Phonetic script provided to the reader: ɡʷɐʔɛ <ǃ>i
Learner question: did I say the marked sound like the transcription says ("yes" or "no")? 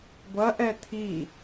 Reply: no